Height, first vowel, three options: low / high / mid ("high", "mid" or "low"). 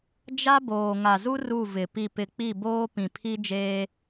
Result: low